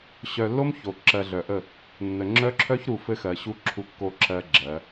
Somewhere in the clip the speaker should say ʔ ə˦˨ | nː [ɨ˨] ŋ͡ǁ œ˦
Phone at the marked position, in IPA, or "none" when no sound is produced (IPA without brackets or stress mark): ə˨